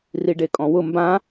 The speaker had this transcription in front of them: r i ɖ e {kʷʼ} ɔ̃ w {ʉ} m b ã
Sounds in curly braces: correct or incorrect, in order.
incorrect, incorrect

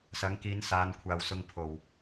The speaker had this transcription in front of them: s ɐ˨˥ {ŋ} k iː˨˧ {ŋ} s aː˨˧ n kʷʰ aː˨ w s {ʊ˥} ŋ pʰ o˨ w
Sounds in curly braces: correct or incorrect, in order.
correct, incorrect, incorrect

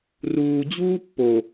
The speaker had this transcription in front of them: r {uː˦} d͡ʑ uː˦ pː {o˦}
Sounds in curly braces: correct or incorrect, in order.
incorrect, incorrect

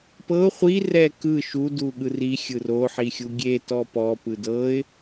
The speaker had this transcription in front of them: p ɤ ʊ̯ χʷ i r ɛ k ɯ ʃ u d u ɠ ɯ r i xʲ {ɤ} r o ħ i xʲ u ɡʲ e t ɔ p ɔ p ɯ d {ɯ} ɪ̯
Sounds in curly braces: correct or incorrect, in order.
incorrect, incorrect

